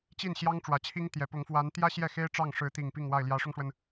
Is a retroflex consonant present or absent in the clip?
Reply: present